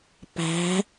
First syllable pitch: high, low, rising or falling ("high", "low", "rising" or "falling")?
rising